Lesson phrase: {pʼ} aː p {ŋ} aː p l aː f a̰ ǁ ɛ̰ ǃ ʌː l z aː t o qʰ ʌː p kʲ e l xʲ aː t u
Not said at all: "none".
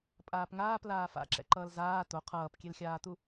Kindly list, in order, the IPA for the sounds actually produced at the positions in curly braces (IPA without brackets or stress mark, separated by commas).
pʼ, ŋ